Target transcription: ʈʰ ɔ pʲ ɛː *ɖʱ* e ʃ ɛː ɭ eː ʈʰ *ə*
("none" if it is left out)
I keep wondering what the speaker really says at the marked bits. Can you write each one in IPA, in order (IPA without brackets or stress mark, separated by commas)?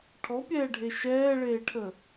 ɖʱ, ə